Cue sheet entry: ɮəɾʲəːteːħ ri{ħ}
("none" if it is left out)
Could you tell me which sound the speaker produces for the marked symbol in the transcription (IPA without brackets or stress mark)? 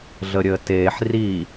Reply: none